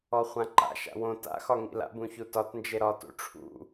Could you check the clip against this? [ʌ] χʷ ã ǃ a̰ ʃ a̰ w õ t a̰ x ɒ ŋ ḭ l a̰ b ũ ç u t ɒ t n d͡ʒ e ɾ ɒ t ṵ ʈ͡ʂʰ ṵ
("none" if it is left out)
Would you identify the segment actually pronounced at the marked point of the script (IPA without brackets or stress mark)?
ɔ